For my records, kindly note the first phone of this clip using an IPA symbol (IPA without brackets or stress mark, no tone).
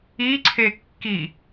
i